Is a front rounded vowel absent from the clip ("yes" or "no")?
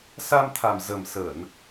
yes